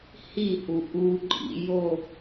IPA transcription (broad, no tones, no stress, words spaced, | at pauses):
hihu ʔuǃʼḭ jo